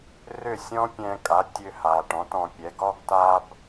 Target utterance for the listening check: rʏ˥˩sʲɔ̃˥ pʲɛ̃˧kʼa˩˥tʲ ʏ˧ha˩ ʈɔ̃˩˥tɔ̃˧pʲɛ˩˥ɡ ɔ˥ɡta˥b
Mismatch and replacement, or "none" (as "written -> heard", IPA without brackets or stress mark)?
none